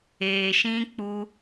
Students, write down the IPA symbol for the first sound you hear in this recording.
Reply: eː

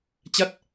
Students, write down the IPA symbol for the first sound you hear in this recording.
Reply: t͡ɕ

